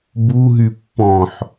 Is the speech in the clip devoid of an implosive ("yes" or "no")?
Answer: yes